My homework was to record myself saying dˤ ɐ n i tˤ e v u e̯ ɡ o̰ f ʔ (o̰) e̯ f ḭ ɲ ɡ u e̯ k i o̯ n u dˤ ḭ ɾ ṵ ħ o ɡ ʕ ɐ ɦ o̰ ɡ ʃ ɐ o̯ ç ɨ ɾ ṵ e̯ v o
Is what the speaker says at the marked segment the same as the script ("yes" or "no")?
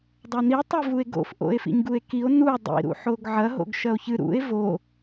yes